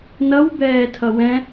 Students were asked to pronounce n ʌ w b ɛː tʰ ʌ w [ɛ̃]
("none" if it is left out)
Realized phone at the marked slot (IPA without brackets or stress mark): ɛ̃